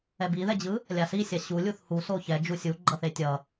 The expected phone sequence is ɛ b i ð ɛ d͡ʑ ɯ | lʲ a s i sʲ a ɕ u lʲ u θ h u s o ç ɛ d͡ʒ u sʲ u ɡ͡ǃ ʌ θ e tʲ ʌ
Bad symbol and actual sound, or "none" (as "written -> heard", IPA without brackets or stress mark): none